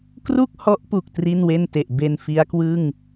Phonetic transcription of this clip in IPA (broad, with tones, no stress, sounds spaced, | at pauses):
k r u˥˩ k̚ h ɔ˦˥ ʔ p u˨˩ k̚ t r i˥˩ n w e˥˩ n t e˨˩ ʔ b e˧ n f i˦˥ a̯ k w ɯ˥˩ ŋ